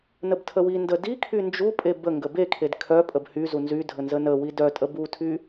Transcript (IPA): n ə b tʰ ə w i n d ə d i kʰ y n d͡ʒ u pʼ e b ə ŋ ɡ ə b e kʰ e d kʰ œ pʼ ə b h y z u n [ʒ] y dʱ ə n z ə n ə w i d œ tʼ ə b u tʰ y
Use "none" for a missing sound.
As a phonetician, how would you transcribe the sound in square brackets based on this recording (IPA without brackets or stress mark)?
z